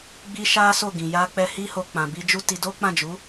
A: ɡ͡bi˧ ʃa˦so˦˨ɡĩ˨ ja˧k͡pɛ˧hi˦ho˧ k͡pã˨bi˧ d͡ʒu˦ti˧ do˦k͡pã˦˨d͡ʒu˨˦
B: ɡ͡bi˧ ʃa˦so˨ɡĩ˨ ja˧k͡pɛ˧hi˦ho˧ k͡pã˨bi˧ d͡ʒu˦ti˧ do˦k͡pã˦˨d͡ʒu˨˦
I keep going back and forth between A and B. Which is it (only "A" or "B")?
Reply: A